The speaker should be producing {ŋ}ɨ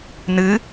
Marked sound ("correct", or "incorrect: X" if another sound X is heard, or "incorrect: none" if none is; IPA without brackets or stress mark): incorrect: n